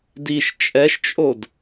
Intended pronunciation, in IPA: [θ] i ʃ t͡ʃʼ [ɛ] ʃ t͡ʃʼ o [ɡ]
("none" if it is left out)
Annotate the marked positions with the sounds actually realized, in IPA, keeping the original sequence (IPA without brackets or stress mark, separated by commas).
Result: d, ɛ, d